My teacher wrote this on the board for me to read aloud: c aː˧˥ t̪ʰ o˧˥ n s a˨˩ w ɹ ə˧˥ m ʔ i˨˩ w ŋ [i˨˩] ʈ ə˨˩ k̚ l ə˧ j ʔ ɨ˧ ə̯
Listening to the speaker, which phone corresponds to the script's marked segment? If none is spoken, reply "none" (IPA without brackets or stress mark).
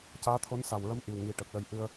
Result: i˨˩